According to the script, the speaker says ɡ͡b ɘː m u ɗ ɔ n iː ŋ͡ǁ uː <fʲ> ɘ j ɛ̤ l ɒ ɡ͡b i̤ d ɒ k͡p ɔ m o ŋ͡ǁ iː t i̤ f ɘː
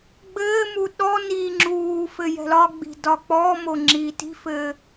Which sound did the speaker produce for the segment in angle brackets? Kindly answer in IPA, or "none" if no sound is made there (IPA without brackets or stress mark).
f